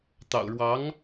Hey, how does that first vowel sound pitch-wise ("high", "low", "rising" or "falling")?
low